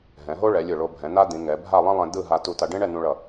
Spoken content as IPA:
ɦɛ̃˩˧ɦo˥ ɭɛ˩˧lʲɯ˧˩ɭo˧ bʱɛ̃˩˧na˥d̪ĩ˩˧ ŋɛ˩˧bʱa˥˧ lˠɛ̃˥lˠɛ̃˧ d̪ɯ˥˧ɦa˧ tu˧ta˧ ɖẽ˥ɳɛ˥˧nũ˧ ɭʌ˧˩

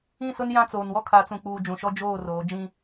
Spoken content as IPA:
ĩ˦˨sʊ˦n jã˦t͡soː˨nwɔ˦ kʰa˨˦t͡sũ˨k͡puː˨ d͡ʒũ˨ʃɔ˦ d͡ʒoː˦˨roː˨˦ d͡ʒĩ˦

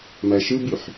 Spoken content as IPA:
mæʃɯbyħ

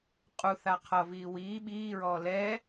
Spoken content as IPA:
qʼu θaqʰʌviː wiː ɓiːɹɔː lɛ

